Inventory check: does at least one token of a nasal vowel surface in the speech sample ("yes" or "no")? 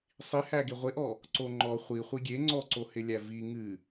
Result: no